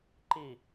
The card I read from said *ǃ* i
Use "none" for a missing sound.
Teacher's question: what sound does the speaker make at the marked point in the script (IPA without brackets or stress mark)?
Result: ǃ